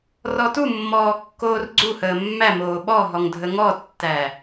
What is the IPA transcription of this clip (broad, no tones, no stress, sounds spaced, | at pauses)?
r ɔ t u mː ɔː kː oː r ɡ͡ǀ u h əː mː æ m oː ɓ ɔ ɦ ɔ ŋ dʱ ə ŋ ɔ tː æ